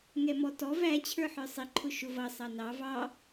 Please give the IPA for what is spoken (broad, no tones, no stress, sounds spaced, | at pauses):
ŋ ɛ m ɔ t ɔ v æ t͡ɕʰ ə˞ ħ ə˞ sˤ ɪ ǃʰ ʊ ʃ ʊ v ʌ sˤ ɑ n ɑ v ɑ